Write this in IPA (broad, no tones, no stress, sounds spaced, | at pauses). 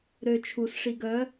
ɾ ø t͡ʃʰ u s ʂ i ɡ œ